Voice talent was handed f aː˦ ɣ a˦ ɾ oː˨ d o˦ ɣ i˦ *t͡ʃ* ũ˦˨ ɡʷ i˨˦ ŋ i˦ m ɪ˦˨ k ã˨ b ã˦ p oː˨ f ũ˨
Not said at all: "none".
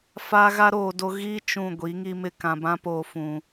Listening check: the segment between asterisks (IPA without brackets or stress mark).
t͡ʃ